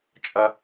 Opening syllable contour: high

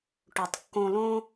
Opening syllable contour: low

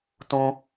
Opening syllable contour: high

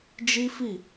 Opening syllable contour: high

